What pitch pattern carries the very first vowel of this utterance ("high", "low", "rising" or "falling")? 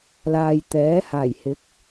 low